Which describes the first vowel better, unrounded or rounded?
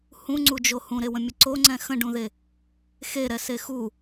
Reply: rounded